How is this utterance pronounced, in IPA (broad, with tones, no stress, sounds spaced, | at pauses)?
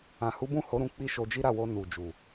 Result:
ã˨ h u˨˦ b ũ˦˨ h o˨˦ ɾ ũ˧ k͡p i˦ ʃ o˧ d͡ʒ i˦ ɾ a˦˨ w o˧ n u˨ d͡ʒ u˨